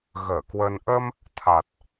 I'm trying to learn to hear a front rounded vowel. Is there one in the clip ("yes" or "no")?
no